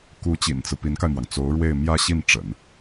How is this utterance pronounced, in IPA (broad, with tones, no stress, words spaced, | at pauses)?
ku˧˥t͡ɕḭ˨˩nt͡sɹ̩˦ pi˧˥nka˧ɪ̯mwɑ˩ŋ t͡so˧˥ʊ̯ɻwe˥˧ɪ̯ mjä˥˧ɕi˥˩nʈ͡ʂə̰˨˩˦n